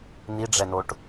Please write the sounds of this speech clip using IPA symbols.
n̪ i ɖ͡ʐ ɛ n o ʈ

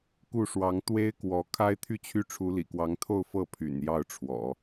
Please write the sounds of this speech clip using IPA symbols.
k u˥˩ ʂ w ɑ˧˥ ŋ t̪ w e˥ ɪ̯ k w ɔ˧˥ kʰ a˥ ɪ̯ t̪ʰ y˥˧ t͡ɕʰ y˥˩ ʈ͡ʂʰ u˧˥ l ḭ˨˩ k w ɑ˧˥ ŋ t̪ʰ o˥˧ ʊ̯ f ɤ˥˩ pʰ y̰˨˩ n j ɑ˥˩ ʊ̯ ʈ͡ʂʰ w ɔ̰˨˩˦

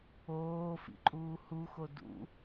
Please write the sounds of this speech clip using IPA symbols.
oː f ḭ ǃʼ uː h u x o d ṵ

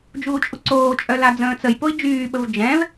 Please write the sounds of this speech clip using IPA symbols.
d͡ʒ uː t͡ʃʼ u ǀ oː t͡ʃʼ œ l a d͡z ə̃ː t͡s ə j p o i̯ d͡ʒ yː ɓ ə v d͡ʒ ɛ̃ v

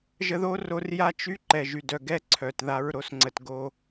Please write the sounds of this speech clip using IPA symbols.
ʒ ə˧ ð o˦ r o˧ r j a˦ t͡ʃ y˦ ǃ ɛ˨ ʒ y˨ d œ˨ ɡ ɛ˦ ǀʰ œ˨ t ð a˧ ɹ ɾ o˨˦ s ŋ͡ǀ ə˨ t ɡ o˧

